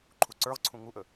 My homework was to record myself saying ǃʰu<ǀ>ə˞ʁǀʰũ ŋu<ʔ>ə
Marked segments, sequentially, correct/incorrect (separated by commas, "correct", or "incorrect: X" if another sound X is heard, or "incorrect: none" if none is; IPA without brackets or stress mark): correct, correct